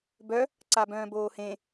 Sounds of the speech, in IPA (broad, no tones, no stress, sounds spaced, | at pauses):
b œ | ǀ a b œ̃ː b oː h ẽ